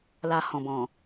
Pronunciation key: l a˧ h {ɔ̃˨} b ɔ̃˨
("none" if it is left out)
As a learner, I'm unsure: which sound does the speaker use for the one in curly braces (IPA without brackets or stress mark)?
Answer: ɔ̃˨